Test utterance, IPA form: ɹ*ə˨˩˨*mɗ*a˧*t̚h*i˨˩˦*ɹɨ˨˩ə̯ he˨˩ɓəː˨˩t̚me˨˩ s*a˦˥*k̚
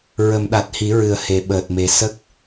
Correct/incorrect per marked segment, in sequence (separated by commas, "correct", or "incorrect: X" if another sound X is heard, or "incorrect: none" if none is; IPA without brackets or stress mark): correct, incorrect: a˨˩, correct, incorrect: ə˦˥